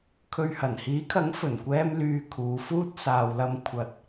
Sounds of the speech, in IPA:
kʰɵ˨ɥhɐ˨˩nhiː˨˥kʰɐ˨˥ŋ fɵ˨˩nkʷɛː˧m lyː˧ kʰuː˨˧fuː˥t̚ saː˨wlɐ˧m kʷʰɐ˧t̚

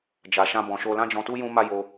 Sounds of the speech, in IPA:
d͡ʒa˧ʃã˦bɔ̃˧ ʃo˧lã˦d͡ʒɔ̃˧tu˦ jũ˦ma˦ jo˧

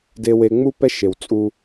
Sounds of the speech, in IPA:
de˧we˧ŋ͡mu˦ pɛ˦ʃe˨w t͡sʼu˧

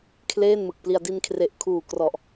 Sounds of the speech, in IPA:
kʰleː˥˩nmɯ˨˩k̚pli˧a̯ di˧nkʰre˨˩ʔkʰuː˨˩krɔ˨˩ʔ

